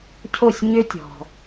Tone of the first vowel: falling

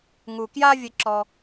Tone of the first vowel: low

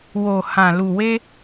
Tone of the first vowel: low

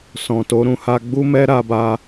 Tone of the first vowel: low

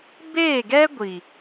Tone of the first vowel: falling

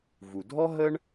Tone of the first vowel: low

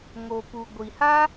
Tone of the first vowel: low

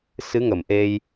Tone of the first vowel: rising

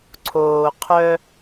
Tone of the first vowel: low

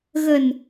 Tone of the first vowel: low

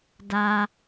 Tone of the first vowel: low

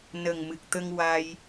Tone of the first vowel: low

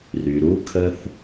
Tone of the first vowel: low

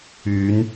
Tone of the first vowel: rising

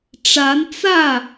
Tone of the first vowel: rising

